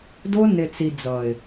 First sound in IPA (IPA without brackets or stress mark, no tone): d